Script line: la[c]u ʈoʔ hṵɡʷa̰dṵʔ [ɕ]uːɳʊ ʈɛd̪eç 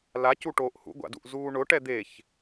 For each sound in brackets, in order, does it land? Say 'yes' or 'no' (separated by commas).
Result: yes, no